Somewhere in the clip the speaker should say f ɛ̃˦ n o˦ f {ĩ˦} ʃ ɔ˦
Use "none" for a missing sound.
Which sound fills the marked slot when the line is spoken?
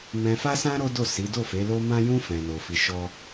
i˦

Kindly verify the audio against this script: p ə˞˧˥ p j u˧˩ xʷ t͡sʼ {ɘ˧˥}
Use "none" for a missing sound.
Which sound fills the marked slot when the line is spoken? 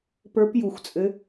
ɘ˧˥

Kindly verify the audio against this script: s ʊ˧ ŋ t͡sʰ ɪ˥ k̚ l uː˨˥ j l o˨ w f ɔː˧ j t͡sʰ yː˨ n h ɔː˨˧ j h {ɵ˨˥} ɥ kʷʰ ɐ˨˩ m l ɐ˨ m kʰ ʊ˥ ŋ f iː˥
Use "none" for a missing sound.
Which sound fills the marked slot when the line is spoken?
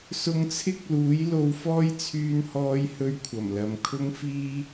ɵ˧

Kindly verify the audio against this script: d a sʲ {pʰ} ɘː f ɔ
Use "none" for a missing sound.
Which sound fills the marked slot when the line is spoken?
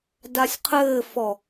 qʰ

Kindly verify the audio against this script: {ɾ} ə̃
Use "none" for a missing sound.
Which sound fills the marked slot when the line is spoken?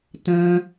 t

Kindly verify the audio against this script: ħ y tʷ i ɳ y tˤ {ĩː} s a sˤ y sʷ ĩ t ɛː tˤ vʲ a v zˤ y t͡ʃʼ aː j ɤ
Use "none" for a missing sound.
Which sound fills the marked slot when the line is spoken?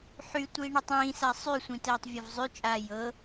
ĩː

